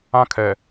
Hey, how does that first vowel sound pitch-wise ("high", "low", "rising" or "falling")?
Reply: high